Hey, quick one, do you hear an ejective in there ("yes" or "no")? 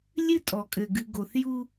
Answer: yes